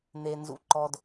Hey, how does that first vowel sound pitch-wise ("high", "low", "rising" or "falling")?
low